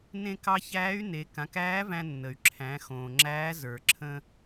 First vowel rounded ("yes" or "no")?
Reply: no